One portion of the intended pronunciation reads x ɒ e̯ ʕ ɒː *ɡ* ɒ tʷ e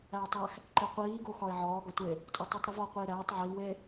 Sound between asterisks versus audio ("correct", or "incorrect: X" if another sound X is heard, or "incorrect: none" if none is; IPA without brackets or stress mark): correct